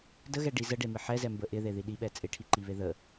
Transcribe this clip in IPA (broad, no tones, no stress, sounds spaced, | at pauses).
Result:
d ə ɣ ɛ ɖ i z ə ɖ e m ɪ ħ ɛ z ɛ m b ə ʔ ɪ ð e ð i ɗ i ɓ ɛ t͡sʼ ɪ ʈʰ i ǃ i β e ð ə